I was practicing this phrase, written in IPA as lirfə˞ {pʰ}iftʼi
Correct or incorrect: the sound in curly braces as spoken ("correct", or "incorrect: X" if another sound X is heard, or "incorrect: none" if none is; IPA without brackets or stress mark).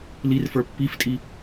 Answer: incorrect: pː